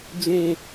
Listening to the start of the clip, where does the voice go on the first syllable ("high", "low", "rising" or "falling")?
high